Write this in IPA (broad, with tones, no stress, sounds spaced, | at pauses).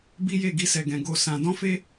b i˦ j e˦˨ ɡ i˧ s ɛ˨ ɡ ɛ̃˨ ɡ o˧ s ã˧ d ɔ̃˦ f e˦